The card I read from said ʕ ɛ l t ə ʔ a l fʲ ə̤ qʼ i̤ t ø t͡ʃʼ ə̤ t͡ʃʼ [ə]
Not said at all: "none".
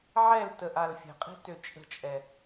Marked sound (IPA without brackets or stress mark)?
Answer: ɛ